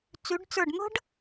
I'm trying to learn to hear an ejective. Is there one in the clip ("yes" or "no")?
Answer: no